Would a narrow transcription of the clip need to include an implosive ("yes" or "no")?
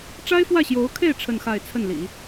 no